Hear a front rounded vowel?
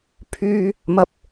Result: yes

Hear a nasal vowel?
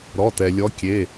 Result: no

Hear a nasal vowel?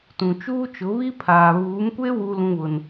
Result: yes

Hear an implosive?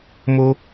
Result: no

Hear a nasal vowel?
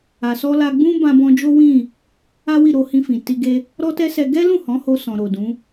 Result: yes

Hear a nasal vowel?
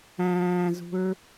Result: yes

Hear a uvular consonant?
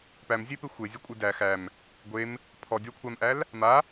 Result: no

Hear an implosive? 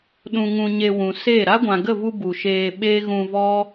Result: yes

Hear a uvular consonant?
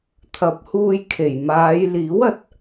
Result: no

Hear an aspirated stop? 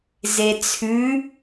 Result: yes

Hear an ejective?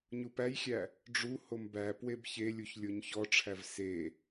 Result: no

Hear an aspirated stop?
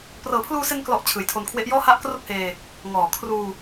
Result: yes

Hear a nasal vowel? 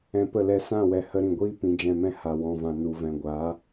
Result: yes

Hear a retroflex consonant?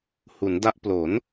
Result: no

